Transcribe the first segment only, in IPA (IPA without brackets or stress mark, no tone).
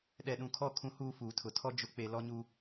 ɗ